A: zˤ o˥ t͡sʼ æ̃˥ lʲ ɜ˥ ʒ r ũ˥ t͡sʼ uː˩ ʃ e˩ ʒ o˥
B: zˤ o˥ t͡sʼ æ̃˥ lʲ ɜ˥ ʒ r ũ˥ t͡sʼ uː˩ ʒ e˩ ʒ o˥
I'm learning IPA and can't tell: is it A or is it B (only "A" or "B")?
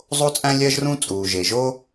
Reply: B